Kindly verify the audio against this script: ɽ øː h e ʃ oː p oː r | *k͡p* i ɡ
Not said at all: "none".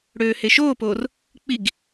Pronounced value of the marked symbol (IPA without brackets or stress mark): k͡p